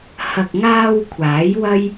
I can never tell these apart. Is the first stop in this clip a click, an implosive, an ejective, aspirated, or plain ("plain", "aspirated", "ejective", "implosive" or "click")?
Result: plain